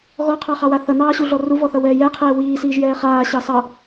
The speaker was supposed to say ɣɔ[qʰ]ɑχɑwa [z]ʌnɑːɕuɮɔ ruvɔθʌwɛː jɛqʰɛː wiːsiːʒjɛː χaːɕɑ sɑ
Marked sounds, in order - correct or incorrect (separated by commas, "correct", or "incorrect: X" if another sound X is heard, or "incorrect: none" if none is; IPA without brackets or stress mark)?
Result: correct, incorrect: θ